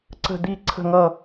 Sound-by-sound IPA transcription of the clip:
ǀə̤˥˧d̪i˥˧ ǀʰə̤˥˧ŋʌ˥˧

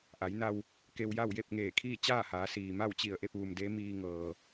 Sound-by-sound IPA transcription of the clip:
ʔa˩˧jna˧w | ke˧wja˥˨w je˥˨p̚ŋeː˧˩kʰiː˥˨ t͡ɕaː˥˨haː˩˧siː˩ ma˥˨wt͡ɕi˧˩ə̯ʔe˥˨p̚ ʋu˩mde˧˥ miː˧ŋɤː˩

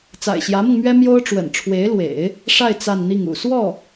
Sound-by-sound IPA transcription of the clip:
t͡sa̰˨˩ɪ̯ɕjä˧˥mɤ˧ŋmɥɛ˥ mjo˥ʊ̯ʈ͡ʂwə̰˨˩n ʈ͡ʂʰwe˧˥ɪ̯lwḛ˨˩˦ɪ̯ | ʂa˥˧ɪ̯ t͡sa˥˧nn̪i˥˩ŋṵ˨˩ swɔ˥˩

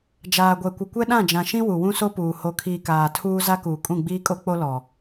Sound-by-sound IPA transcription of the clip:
d͡ʒaː˨ɡʷɛ˨kʷɪ˨ kʷɛ˦ɗã˦˨d͡ʒã˨ʃĩ˦ wu˨wũ˦so˦puː˨ ho˨kʰiː˨ kaː˨tʰuː˦ za˦kuː˨ kʼũ˦˨ɡ͡biː˦kʼo˦k͡po˦ lɔ˨

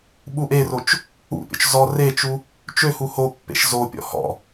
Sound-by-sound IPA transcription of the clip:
ɓuʔerot͡ʃ | ṵpʲɔ̰t͡ʃ zɔ ret͡ʃu | t͡ʃøhu hopːḛʃ zopʲɔ̰ hɔ̰

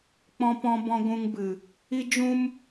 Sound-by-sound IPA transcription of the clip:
k͡pɔ̃˧pɔ̃˧bɔ̃˧ ɡʷũ˧ŋbɨ˨ | i˦ d͡ʒũ˦m

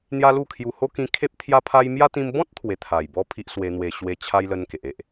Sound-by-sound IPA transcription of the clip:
n̪ja˦lu˥˧kʰju˧ ho˦kĩ˧kʰe˦p̚ t̪ʰja˦pʰa˦j mja˦t̪ĩ˧m bɔ̃˦t̚ t̪ʰwe˧ t̪ʰa˨˩jbɔ˦ pʰi˦ʔswe˧n̪we˧ ɕwe˦ t͡ɕʰa˦jlə˧n ke˨ʔe˦ʔ

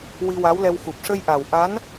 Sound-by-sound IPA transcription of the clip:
wi˧wa˧˥wlɛ˧w xu˨˩p̚ʂə˧jʔa˨˩w ʔa˧˥n

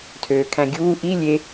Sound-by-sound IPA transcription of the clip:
tʰøːkʰæ̃ɡʲuː ʔi lʲe

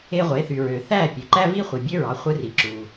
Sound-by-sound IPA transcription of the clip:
e˧ʁʷe˩˥θy˩ɹø˩ θæ˥˩ pʲø˩ ǃæ˥vi˥χʷi˩ bʲø˥ɹɑ˩˥χʷɯ˧ri˩ ǁu˩

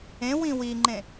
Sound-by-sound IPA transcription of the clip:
ẽ wĩwiŋ͡ǃẽ

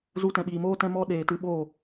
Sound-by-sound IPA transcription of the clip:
zu˧tɛ̃˨ɓiː˨moː˦ tɛ̃˦mɔ˦ ɗeː˨tɨ˧ɓoː˦˨

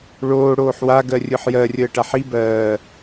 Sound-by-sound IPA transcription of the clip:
ɭoː ɽoːħwa ɡɜrʲɯħjɜ rʲəːʈaħi bɜː

